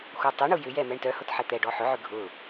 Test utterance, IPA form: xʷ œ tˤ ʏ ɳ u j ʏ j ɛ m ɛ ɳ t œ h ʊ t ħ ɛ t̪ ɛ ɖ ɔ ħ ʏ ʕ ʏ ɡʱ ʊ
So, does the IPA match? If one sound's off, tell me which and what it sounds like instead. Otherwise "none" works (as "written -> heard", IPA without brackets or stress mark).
none